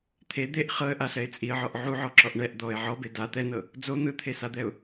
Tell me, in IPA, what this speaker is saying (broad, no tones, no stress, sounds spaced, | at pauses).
t̪ʰ e d̪ e ʔ χ ɤ ə̯ ʔ a ɬ ɛ ɪ̯ t͡sʼ i ə̯ ʕ ɔ ʔ ʕ u ʕ ɔ ǁ ɔ ʔ ɳ ɛ ʔ d̪ ɔ ɪ̯ ʕ ɔ b e d a t̪ ɛ n ɤ | d͡z o n̪ ɯ t̪ʰ e s a d̪ ɛ ʊ̯